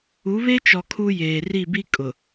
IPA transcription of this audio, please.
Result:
u˨˦βe˦t͡ʃɔ˨ kʰu˦jeː˨ ri˦˨bi˦ kʼʊ˨

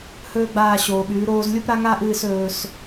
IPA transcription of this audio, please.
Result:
hɵː˦ɡ͡baː˦˨ ɕoː˨ɓʉː˨˦ ɾoː˦z lʲu˦pɾa˦ŋaː˦ʔ ɨː˦s ɵː˦s

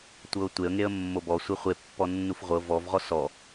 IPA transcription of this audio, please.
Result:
tʷɤʊ̯tʷeə̯ŋeə̯ mːobɔ sʷeχʷepːɔ nːufʁʷɤ vɔvʁɔ sɔ

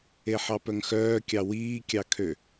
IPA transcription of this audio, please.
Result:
eħɑpœŋxœː kʲɑwiː kʲɑkʰø

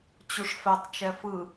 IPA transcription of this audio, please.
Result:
t͡ɕuʂfɛtˤt͡ʃɛ fɯ

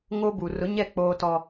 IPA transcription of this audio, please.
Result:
ŋo˦bu˨ rʊ˨˦ɲɛ˦˨ k͡poː˦tɔ˦

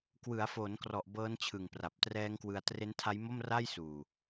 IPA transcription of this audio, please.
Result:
kwɯ˩˦a̯foː˩˦nkrɔ˨˩ʔ bɤː˦˥n t͡ɕʰɯ˨˩ŋpra˨˩p̚trɛː˦˥ŋkwɯ˧a̯ tre˦˥ntʰa˦˥jmo˥˩m ra˥˩jsuː˨˩

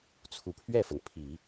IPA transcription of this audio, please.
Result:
t͡sʰu˨˩ pʰɥɛ˥˩fə˩n pʰi˨˩˦

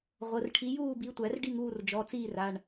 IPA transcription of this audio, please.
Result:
ʁʷə˩˧˩rʈʰi˨˦juː˥˨bi˨˦ tʷæ˨˩˦rɖi˥˨ŋuː˥˨rd͡ʒɔ˩˧˩ t͡siː˥˨ra˩˧˩ɳ

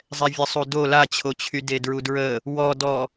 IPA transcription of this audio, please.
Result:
zˤɛvʲəsˤudo lat͡ɕʰot͡ɕʰy dedɹudɹə | wɔdɔ

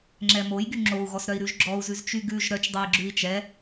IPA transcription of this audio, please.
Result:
ŋ͡ǁɛmojɡy ŋ͡ǁou̯ɣɔsɾœi̯ ɾʉʒɡ͡ǁɔu̯zʉz t͡ʃyɡʉʒ ɾœt͡ʃdˤɛi̯ɡ͡ǁʉi̯ t͡ʃɛ

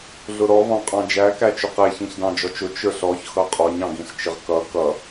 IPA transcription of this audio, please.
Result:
ɮʊɾɔ vɑ̃qʼɑ̃d͡ʒæ kæt͡ʃʊqɛ çĩçdɑ̃d͡ʒɔt͡ʃʊ t͡ʃə˞ɬɔç xʌqʼɔɲ ɑ̃ɡĩɬt͡ʃɪʁkʌ kʌ

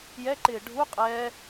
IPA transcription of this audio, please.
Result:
jɛǃɪː ɖʱu qʼɛː

